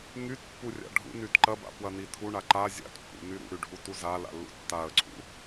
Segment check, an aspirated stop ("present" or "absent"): present